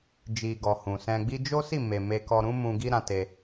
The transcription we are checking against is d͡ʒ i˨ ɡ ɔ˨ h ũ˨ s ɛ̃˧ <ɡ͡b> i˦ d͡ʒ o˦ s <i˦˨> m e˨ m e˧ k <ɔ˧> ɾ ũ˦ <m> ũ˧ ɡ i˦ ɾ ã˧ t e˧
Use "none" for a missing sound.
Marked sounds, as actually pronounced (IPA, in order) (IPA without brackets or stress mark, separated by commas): ɡ͡b, i˦˨, ɔ˧, m